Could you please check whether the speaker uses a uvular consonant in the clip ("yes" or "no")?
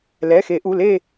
no